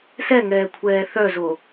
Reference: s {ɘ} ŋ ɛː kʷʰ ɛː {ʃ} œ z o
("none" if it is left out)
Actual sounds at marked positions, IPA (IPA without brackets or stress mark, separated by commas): ɛ, θ